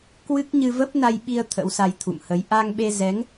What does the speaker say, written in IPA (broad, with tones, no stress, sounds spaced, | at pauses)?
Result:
k w ɨ˦˥ k̚ ɲ ɨ˧ v ə˦˥ p̚ n a˧ j ɓ i˧ ə̯ t̪ʰ ə̰˧˥ w s a˧ j t̪ʰ ṵ˧˨ m h ə˨˦ j ʔ a˧ ŋ ɓ e˧ z ɛ˨˦ ŋ